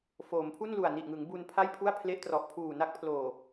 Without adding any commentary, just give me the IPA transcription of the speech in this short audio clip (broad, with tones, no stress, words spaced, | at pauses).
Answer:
foː˩˦mpʰu˥˩n lu˨˩a̯ni˨˩ʔŋɯ˩˦ŋ bu˧npʰa˥˩jpʰu˥˩a̯ pʰle˦˥ʔtrɔ˨˩ʔ pʰuː˨˩na˦˥k̚pʰloː˨˩